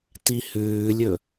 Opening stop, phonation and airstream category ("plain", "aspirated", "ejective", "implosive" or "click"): plain